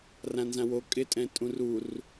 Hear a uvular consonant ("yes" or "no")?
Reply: no